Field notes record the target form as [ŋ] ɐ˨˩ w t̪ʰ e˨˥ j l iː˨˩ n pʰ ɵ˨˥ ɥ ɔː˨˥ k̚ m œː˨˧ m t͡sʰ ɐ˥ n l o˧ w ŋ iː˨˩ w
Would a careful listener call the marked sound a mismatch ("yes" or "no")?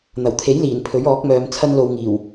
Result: yes